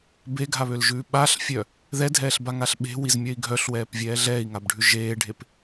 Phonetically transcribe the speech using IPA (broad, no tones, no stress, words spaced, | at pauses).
beɡʱaβølʒʉː ɓaɬfʲœ | ðɛdʱɛːɬbaŋaɬ ɓe̤wizmʲœi̯ ɡʱœɬwɛːpvʲɛː ɮɛːi̯ŋabɖʱʉ ʒeːɖʱep